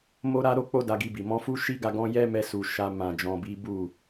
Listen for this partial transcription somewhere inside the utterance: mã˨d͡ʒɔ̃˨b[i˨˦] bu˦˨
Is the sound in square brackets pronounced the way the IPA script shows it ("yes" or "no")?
yes